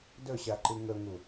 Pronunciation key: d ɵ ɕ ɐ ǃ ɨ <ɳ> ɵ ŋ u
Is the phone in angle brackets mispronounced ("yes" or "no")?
yes